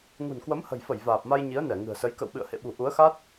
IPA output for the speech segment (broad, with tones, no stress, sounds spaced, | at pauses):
ŋ ṳ˨˩ n k w ə˨˦ m h ə̤˨˩ j f ə˧˩ j v aː˨˩ p̚ m a˧ j ɲ i˨˦ ə̯ n ɛ˧˩ ŋ ɨ̤˨˩ ə̯ s ə˨˦ j k ə̰˧˨ w ɓ ɨ̰˧˨ ə̯ h ḛ˧˨ ɓ ṳ˨˩ ʔ u˨˦ ə̯ x a˦˥ t̚